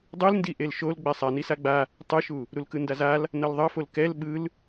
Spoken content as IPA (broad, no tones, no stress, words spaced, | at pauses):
dˤɯlndi ʔelʃol ɡ͡bɛsˤa nisaɡ͡ba | tˤɯʃu | ɾulkɯndazal | nʌlðˤʌfol kɛl ɓɯl